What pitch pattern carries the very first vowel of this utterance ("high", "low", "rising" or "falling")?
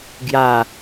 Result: falling